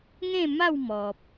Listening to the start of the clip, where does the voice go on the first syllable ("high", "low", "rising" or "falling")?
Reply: falling